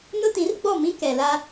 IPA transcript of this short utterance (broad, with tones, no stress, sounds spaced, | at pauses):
n ʊ˦ t ĩ˨˦ r ɡ͡b ɔ˦˨ m ĩ˦ k ɛ˨ l a˦